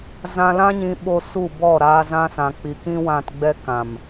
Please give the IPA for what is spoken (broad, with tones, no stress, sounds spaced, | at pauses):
z ã˧ l ã˦ ɲ ĩ˧ ɓ o˧ s u˦˨ b ɔ˦˨ ɾ a˧ z ã˧ s ã˨ k͡p i˨ k ĩ˦ w ã˧ t ɡ͡b ɛ˦ k ã˨ m